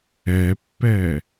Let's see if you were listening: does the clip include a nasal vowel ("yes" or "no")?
no